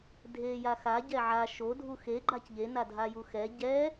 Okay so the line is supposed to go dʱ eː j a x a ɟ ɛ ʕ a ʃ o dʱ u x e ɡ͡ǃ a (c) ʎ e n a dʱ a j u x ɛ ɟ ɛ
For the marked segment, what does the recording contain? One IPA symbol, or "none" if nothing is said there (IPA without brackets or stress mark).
c